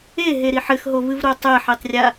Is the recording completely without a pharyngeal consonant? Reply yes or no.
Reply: no